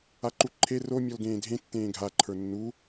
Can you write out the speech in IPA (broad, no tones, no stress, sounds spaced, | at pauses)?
a ǃ u ǃʰ e r o mʲ ɔ l ɡ ẽː dʱ ẽ tː ẽː ɡʱ a ǃʰ ə˞ nː u